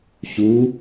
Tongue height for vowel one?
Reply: high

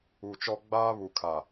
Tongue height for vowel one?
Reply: high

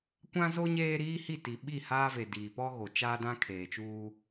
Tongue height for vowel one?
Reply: low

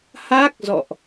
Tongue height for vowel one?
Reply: low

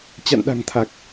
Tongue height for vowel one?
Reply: low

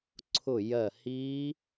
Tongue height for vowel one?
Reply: high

